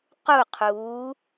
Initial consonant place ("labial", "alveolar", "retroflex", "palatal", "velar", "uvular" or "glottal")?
uvular